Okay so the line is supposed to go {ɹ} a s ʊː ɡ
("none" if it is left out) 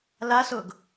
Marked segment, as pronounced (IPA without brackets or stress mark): l